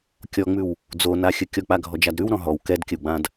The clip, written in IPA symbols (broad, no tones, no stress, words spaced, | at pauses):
kʲɔŋ͡mʉw | d͡zonaxʲə kʲɔk͡paɡʱɔd͡ʒad ɾʉwɾɔ̃ ɦɔw kɛdkʲəwɡ͡bãd